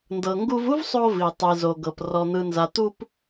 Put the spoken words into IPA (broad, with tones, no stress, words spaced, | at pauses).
ndɤ˩ŋɡu˧vu˥vsˤo˧ vi˩tˤi˩zo˩ɡɤ˩p rɔ˩n̪ɯ˩nza˩ t̪u˧p